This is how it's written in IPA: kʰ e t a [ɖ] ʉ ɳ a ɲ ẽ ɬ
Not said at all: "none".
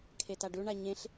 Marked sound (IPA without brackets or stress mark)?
ɖ